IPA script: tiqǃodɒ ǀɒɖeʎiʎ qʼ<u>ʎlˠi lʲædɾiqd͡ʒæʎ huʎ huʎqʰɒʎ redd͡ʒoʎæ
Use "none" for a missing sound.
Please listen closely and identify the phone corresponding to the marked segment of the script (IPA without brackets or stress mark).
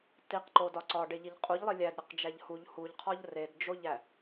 u